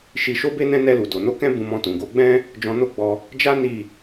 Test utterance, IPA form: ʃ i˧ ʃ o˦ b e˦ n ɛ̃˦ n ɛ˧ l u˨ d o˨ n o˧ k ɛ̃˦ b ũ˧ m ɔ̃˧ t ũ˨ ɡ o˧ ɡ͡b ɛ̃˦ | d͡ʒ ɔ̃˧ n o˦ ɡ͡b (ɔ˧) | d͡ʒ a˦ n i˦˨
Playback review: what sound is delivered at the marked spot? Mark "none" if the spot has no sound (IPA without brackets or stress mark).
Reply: ɔ˧